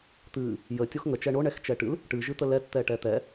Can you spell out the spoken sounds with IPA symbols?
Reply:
t̪ɨ | jə tʲoxŋə t͡ʃɛɳoɳɛx t͡ʃɛʈɨl | ʈɨʒɨt̪ə lɛtt̪ɛʈɛ t̪ɛ

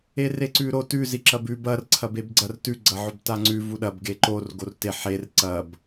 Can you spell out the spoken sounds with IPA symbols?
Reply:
ereǀʉɾo tʉ ziǁɐbʉ bɐr ǀʰɐbebɡ͡ǀɐr tʉ ɡ͡ǀɐʕɵbtaŋ͡ǀʉ vuɗɐb ɡeǃor ɡorte ħer ǀɐb

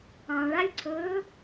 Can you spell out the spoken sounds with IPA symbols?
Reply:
ɑ̃ɭalʲǀʰɵː

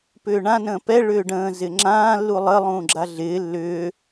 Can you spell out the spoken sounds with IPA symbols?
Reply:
pʏːɳã nə̃ːpɛ ɭʏːɖə̃ː zɪŋ͡ǁãː lːulˠə lˠũːɡ͡ǁaɮɪː lːʏː

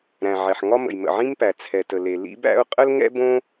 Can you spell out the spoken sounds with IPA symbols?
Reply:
ɾæ̃˩ʕɛ˩ħŋɒ˥ mə̰˩jmə̰˩ʕĩ˥mpæ˩ t͡sʰɛ˩tə˩le˩ lḭ˥bæ̰˥ʊ̯ qʼə˥l ŋɛ̰˥ bõ˥

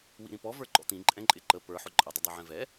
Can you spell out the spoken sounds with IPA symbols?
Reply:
wḭɾĩpɔ və˞ǃɔ̰t̪ĩ ǃʼɛ̃ǃʼɪǃə pə˞ ħʊǃʼə dˤʊdˤiʕɛ̃vɛ

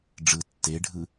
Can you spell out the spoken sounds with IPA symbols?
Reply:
ɖ͡ʐɯ tːeɖʱɯ

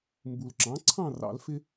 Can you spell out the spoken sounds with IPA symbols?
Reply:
mbu˨l ǁɑ̃˩˥ǀʰɑ̃˥˨rɑ̰˨˩˦lfɪ˦

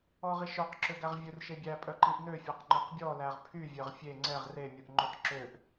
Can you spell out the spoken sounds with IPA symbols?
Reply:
ɔʁiʃœq ǁøɡæʁvʲɵr ʃebʲæ pʼœǃiʔnø fʲæqŋ͡ǃœqbʲɔ læʁpʰy vʲœʁfʲe ŋ͡ǀɛʁ re mʲuʔŋ͡ǃɵq ǁøʔ

